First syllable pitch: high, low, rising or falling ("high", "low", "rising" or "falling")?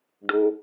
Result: low